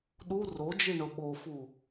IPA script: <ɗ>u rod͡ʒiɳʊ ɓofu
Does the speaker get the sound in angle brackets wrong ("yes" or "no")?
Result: no